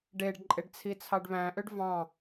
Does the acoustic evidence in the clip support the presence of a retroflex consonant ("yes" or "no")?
yes